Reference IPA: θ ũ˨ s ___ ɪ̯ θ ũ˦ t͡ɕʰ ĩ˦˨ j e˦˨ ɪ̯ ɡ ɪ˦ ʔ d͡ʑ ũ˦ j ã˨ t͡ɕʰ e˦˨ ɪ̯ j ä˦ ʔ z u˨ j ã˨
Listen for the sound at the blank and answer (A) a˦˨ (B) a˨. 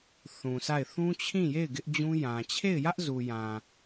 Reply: A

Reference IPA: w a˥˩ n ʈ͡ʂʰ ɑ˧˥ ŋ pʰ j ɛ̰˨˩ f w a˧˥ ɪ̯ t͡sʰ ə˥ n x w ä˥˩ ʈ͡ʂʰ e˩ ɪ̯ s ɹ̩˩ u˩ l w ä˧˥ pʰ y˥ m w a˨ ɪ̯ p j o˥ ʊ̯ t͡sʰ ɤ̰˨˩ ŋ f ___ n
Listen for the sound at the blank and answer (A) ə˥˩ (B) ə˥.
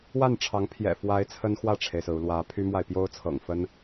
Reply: B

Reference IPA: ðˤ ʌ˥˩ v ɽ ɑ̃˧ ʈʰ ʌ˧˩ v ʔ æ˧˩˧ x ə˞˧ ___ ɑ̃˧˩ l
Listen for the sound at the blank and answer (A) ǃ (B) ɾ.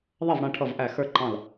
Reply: A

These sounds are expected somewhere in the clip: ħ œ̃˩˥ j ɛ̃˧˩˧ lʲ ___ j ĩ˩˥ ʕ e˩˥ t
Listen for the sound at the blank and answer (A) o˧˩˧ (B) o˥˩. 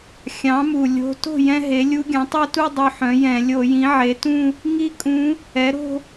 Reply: A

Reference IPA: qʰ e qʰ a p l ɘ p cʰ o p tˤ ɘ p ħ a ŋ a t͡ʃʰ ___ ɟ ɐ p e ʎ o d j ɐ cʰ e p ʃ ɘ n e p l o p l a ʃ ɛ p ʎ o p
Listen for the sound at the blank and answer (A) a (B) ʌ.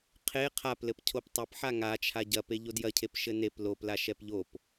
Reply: A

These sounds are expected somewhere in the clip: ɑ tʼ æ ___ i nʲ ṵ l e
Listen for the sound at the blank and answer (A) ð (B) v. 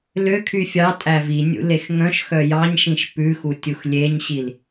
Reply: B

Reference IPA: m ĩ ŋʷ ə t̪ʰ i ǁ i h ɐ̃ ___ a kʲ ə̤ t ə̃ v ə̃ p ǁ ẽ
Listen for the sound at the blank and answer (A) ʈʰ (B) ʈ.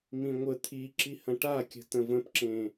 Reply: B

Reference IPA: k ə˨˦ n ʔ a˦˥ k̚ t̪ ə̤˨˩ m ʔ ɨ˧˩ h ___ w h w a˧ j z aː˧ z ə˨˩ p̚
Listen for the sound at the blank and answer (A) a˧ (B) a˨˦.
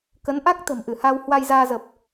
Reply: A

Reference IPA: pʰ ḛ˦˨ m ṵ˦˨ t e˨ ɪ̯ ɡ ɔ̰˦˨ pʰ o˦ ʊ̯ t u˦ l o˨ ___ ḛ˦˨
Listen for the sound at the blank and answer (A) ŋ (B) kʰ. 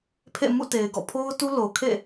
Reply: B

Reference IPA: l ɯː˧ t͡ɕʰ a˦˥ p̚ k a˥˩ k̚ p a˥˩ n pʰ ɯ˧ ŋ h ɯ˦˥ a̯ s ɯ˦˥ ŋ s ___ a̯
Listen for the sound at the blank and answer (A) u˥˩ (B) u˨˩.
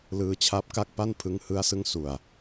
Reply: B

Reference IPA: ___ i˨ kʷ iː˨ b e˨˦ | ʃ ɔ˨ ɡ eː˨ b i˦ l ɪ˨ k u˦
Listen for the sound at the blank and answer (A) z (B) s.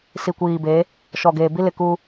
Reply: B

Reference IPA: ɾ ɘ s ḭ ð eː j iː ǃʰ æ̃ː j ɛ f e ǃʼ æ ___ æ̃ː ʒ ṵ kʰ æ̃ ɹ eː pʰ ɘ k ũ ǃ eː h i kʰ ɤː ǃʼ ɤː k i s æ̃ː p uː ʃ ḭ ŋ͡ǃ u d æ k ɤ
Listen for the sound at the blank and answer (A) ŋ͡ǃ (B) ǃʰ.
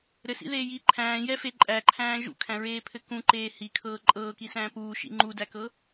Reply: B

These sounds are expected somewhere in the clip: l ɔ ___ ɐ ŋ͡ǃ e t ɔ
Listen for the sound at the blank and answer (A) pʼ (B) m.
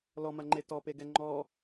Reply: B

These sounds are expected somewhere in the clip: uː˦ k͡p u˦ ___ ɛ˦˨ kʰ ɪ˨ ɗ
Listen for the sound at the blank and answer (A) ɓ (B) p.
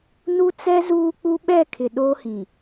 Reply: A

